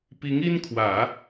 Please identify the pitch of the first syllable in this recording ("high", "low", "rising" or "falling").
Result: rising